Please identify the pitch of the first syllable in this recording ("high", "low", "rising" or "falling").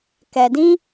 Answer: low